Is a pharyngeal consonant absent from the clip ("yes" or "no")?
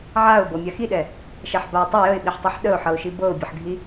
no